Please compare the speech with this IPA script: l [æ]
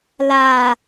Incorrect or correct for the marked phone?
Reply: incorrect: a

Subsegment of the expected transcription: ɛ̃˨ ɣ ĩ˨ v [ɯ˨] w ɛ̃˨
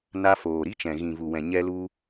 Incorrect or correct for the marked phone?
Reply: incorrect: u˨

